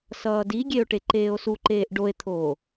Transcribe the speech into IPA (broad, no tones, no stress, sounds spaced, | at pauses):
s ʌː d i ɡʲ e o̯ ʈ e ǃ eː o̯ s u ǃ eː ʔ ɖ o e̯ t̪ʰ oː